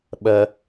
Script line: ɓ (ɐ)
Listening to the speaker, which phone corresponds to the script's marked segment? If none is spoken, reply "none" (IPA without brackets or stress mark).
ɐ